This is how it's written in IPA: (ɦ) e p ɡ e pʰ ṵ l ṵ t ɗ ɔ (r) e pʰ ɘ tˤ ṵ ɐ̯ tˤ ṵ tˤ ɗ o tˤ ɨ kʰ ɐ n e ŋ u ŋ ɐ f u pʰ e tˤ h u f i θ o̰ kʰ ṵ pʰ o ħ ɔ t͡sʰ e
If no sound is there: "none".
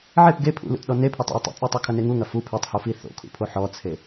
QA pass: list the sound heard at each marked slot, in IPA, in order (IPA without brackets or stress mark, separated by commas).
ʕ, n